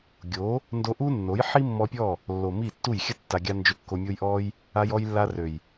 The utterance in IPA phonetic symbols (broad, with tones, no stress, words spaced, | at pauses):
ɡʲo˨˦ | ndo˧ʔu˦ nːo˨˦jħi˦mːɔ˧pʲɔ˦˨ | lːo˨ mi˦˨tːu˦˨j xʲə˦ tːa˧ɡʲa˦ nd͡ʒø˧kːo˧mʲo˦j ʔɔ˦j | a˧jɔ˧j lːa˧rø˨j